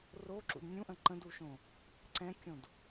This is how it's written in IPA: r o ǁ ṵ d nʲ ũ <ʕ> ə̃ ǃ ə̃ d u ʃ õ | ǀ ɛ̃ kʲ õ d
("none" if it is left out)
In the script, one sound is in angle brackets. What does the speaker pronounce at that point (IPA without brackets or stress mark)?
ʔ